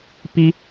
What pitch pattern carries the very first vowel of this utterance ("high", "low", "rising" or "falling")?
high